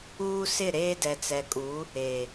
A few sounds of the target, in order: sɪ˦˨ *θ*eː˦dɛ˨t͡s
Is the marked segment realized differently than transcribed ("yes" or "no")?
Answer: yes